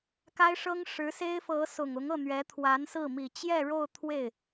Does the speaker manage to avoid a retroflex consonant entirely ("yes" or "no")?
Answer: no